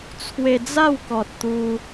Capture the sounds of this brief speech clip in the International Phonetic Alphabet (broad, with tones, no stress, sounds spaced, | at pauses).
t͡sʰ w e˧ d͡z a˥˧ w k ɔ˨ t̚ t̪ u˧